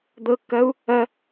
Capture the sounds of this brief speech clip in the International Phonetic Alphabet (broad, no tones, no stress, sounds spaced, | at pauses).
d̪ ɤ kː ɐ u̯ | ɐ